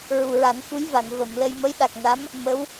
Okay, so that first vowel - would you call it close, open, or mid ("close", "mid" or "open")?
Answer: close